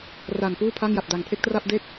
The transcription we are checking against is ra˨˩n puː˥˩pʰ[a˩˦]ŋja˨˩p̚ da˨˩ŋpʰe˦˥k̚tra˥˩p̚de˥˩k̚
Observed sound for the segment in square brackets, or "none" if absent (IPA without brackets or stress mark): a˥˩